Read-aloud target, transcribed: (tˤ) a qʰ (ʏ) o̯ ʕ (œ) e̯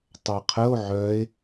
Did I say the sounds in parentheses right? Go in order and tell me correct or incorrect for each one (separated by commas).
correct, incorrect, correct